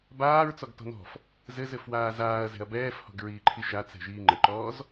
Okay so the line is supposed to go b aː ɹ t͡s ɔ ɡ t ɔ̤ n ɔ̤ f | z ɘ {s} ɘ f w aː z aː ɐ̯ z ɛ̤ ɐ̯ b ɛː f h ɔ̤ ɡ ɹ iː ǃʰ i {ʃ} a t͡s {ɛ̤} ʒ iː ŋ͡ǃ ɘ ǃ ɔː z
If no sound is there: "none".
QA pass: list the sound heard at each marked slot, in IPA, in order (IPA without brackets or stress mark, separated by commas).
z, ʃ, ɛ̤